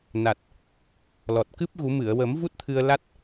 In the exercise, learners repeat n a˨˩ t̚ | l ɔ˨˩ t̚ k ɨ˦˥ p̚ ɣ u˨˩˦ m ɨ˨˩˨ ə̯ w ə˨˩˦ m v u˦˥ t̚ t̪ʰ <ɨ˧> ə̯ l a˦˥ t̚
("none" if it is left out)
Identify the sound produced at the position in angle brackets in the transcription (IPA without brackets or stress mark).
ɨ˧